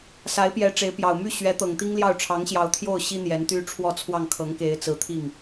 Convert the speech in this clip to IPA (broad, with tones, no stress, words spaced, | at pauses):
sa˧˥ɪ̯pjɛ˧˥ ʈ͡ʂe˧˥ɪ̯pjɑ˨˩ʊ̯ my˥˩ ɕɥɛ˧˥t̪ɤ˨˩ŋt̪i˥ŋljɑ˥˩ʊ̯ ʈ͡ʂʰɑ˧˥ŋɕjɑ˧˥ʊ̯ t̪ʰjo˥˩ʊ̯ ɕi˥ n̪jɛ˧˥nt̪y˥ ʈ͡ʂʰwɔ˥˧t͡sʰwɑ˥˩ŋkʰɤ˧˥ŋke˧˥ɪ̯ t͡sɹ̩˧˥ t̪ʰi˥˩ŋ